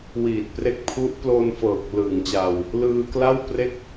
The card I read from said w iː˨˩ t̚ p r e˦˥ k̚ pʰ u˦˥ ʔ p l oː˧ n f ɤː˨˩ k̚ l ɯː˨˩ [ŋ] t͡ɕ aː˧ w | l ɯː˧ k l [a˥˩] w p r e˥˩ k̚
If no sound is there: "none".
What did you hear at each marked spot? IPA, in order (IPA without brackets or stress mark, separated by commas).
ŋ, a˥˩